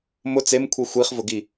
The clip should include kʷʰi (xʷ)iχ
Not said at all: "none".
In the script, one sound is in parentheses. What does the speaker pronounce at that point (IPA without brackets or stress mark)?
xʷ